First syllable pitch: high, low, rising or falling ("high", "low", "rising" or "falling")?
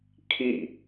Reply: falling